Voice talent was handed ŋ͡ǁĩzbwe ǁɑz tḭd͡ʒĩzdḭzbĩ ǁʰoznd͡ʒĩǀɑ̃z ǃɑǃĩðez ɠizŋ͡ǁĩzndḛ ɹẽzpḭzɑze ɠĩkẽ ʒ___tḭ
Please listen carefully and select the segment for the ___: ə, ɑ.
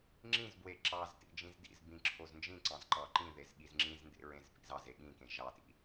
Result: ɑ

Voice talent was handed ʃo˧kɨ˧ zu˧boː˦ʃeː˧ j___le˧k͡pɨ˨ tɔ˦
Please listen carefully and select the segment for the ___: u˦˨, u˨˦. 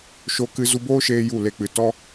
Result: u˦˨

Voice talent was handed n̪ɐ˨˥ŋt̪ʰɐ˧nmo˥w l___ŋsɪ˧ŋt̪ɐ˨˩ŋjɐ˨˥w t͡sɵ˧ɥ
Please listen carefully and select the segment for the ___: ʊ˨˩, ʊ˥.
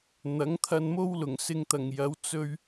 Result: ʊ˨˩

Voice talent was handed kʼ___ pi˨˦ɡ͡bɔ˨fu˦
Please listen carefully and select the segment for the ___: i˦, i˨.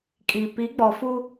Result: i˨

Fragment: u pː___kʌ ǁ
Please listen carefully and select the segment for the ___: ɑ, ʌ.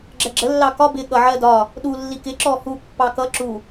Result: ɑ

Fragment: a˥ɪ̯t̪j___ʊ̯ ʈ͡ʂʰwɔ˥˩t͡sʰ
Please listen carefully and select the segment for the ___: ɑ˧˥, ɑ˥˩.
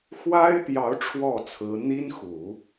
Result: ɑ˧˥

